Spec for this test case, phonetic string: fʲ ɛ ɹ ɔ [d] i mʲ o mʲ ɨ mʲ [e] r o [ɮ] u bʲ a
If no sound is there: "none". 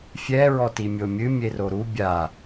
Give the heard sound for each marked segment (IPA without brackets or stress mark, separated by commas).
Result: t, e, ɾ